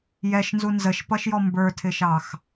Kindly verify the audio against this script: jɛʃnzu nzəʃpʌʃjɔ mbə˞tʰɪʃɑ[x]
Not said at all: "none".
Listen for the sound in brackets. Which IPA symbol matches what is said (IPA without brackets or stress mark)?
x